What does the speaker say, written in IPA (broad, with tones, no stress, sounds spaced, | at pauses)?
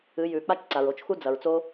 ɨ˨˦ j ʉ˨ k͡p a˦ t͡ʃ ǀ a˨ ɹ o˨ t͡ʃ x u˦ d͡z ɐ˨ ɹ t͡s o˦